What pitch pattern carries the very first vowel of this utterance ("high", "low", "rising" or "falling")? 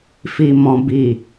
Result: low